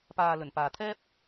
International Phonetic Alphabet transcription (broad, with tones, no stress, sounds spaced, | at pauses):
p aː˨ l ɵ˨˩ n p aː˨ t̪ʰ ɛː˥ p̚